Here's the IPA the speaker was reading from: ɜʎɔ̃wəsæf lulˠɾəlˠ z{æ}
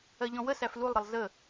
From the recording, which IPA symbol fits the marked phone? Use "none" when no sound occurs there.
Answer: ə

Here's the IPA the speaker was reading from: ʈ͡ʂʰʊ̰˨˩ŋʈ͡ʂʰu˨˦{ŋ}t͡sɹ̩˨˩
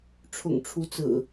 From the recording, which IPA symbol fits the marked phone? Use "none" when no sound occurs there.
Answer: none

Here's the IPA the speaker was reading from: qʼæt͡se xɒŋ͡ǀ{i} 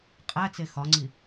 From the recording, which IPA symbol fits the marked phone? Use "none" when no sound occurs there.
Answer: i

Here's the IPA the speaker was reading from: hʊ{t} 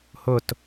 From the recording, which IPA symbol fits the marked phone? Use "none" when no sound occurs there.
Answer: t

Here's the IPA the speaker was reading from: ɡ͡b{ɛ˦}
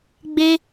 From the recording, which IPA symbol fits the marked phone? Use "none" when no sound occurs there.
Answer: e˦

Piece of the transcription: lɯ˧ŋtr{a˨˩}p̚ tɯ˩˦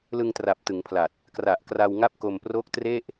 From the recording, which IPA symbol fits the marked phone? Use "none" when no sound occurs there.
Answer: a˨˩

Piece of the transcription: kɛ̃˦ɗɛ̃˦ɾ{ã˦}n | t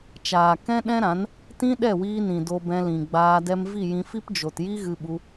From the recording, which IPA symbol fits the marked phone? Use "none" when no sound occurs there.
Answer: ã˨˦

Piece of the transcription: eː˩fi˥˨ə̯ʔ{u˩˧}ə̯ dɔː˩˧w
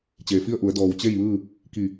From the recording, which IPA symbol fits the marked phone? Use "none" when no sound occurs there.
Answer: u˩˧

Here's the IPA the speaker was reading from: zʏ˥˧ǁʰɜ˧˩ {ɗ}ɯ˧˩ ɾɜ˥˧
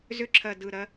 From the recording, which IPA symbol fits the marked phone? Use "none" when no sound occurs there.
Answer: d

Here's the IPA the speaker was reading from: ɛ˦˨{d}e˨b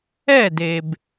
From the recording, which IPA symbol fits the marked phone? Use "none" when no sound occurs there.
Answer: d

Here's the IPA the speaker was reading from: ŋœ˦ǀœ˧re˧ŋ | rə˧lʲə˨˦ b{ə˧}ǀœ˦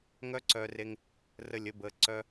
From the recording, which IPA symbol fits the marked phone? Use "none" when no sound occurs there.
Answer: ə˧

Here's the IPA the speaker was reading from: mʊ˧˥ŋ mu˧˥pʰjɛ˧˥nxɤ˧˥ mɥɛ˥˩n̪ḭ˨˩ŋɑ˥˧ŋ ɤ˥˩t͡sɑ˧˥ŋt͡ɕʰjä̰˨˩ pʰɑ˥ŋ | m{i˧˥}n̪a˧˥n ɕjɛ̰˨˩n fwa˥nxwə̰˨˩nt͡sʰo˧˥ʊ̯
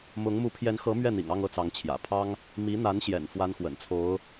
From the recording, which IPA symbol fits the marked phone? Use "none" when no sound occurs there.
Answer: i˧˥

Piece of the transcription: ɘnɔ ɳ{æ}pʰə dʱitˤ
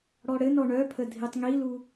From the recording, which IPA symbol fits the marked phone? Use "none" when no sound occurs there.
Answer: œ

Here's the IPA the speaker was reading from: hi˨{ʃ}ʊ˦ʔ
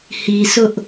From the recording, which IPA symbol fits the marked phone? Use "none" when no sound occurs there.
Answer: s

